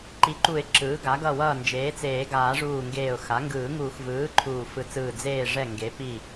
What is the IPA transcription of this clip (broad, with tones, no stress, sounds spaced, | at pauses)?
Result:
ǃ i˩˥ ǃ u˨˩˦ ɪ̯ ǁ ɯː˩˥ ɡ a˩˥ ɡ ʌ˧˩ w ʌː˧˩ n d͡ʒ eː˩˥ t͡s eː˨˩˦ ɡ aː˨˩˦ ʐ uː˧˩ ŋ ɡ eː˧˩ ʊ̯ x a˩˥ ŋ ɡ ɯː˨˩˦ ŋ uː˨˩˦ x v ɯː˩˥ ǃʰ uː˧˩ f ɯ˧˩ t͡s ɯː˧˩ d͡z eː˧˩ ʐ ɛ˧˩ ŋ ɡ e˩˥ p i˧˩